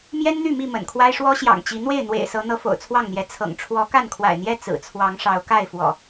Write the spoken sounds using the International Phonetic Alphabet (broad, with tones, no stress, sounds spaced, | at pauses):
m j ɛ˦ n n̪ y˥˨ m i˥˨ m ə̰˨˩ n kʰ w a˦ ɪ̯ ʂ w ɔ˦ ɕ j ɑ̰˨˩ ŋ t͡ɕ i˨˦ n̪ w e˥˨ ɪ̯ n̪ w ḛ˨˩ ɪ̯ s ɤ˨˦ n̪ ɤ˨˦ f o̰˨˩ ʊ̯ t͡sʰ w ɑ˥˨ ŋ n̪ j ɛ˨˦ t͡sʰ ɤ̰˨˩ ŋ ʈ͡ʂʰ w ɔ˨˦ k a˥˨ n kʰ w a̰˨˩ ɪ̯ n̪ j ɛ˥˨ t͡s ɹ̩˨˩ t͡sʰ w ɑ˨˦ ŋ ʂ ɑ˨˦ ʊ̯ k a˥˨ ɪ̯ f w ɔ̰˨˩